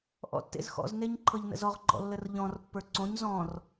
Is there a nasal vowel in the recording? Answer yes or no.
yes